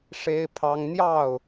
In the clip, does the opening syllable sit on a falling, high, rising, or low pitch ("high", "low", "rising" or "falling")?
high